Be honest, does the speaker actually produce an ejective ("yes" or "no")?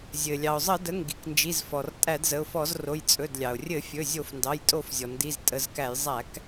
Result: yes